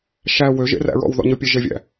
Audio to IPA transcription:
ʃ æ w ø ʒ ḛ r æ̰ ɹ ɔ̰ w ð ɔ̰ ɲ ɵ pʲ e ʒ e vʲ æ̰

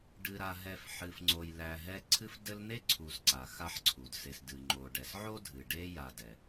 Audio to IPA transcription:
ɖ ɨ˨ ɾ a˨ ɦ ɛ˨ f ħ ɨ˨ f ŋ͡ǀ o˨ j l æ˨ ɦ ɛ˦ ǀʰ ɨ˦ f d ɘ˦ l n̪ e˥ ǀʰ u˨ s ǀ a˩ x a˦ ħ ǀʰ u˩ d s e˨ s d ɨ˩ ŋ͡ǃ o˩ ɖ ɛ˩ s ʕ o˥ dʱ ɨ˩ ɖ e˦ j a˨ d ɛ˩

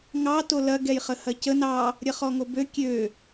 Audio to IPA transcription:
ŋ ɑ t o l ɐ ɡ ɛ j χ ə h ɐ c ə n ɑ | ɾʲ ɐ χ ɔ ŋ o b ø kʲ ø

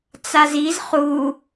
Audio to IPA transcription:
t͡s a z i z χ u

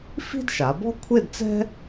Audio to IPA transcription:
f i̤˥ d ʃ a˩˧ b ɔ̤˥ kʷʰ e˥˧ d t͡s ɛ̤˥

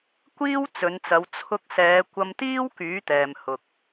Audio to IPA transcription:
kʷ iː˥ w t͡s ɵ˨˧ n t͡s ɐ˨˧ w t͡sʰ ʊ˧ k̚ s ɛː˨˧ kʷ ɐ˧ m t̪ iː˥ w k yː˨˥ t̪ ɛː˨ m h ʊ˨ k̚

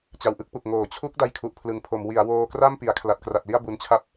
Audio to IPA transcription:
t͡ɕ a˧ w ʔ ɯ˦˥ k̚ p u˨˩ k̚ ŋ oː˩˦ t͡ɕʰ u˦˥ k̚ d a˦˥ j kʰ u˨˩ ʔ pʰ l ɯ˨˩ ŋ pʰ o˩˦ m w i˩˦ a̯ w oː˧ k r a˥˩ m p i˩˦ a̯ kʰ l a˨˩ t̚ k r a˨˩ t̚ l i˥˩ a̯ b u˧ n t͡ɕʰ a˥˩ p̚

